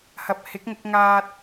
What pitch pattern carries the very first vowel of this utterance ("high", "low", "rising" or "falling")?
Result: low